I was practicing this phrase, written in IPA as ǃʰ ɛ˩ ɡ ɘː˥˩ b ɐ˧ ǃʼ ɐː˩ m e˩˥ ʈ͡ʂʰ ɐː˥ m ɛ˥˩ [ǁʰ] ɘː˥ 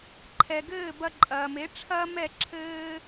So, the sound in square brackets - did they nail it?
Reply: yes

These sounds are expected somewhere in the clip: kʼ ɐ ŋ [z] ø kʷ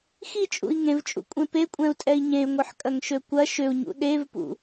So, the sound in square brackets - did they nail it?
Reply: no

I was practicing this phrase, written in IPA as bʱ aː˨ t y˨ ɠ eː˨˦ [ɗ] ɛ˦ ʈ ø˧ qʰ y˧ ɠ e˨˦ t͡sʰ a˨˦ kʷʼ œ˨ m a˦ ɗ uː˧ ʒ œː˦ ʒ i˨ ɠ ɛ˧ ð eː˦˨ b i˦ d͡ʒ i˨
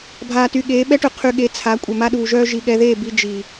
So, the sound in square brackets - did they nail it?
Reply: no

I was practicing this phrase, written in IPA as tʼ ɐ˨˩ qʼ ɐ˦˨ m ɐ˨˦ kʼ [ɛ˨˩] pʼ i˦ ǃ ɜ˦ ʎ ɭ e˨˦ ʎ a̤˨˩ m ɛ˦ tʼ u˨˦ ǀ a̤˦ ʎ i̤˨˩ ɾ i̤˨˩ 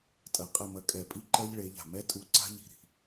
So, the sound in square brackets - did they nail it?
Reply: yes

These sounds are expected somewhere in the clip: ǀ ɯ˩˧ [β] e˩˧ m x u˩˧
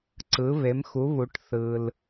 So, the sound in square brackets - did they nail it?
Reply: yes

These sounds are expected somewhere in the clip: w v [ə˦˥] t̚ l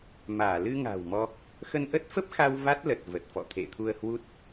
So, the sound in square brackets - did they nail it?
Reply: no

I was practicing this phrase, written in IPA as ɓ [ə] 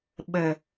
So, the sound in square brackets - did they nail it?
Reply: yes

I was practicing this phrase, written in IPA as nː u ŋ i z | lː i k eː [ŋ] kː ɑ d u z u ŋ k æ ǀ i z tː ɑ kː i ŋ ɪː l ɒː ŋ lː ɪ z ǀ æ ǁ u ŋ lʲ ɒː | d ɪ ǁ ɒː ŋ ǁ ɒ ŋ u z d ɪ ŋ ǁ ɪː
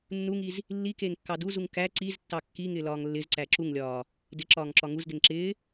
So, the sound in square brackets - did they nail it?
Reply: yes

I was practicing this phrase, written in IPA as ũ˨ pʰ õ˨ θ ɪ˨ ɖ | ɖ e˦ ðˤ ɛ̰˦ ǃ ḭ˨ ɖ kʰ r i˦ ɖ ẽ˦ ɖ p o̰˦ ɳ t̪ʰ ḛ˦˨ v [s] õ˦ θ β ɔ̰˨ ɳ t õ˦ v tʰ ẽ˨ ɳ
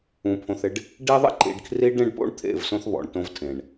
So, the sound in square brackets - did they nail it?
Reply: yes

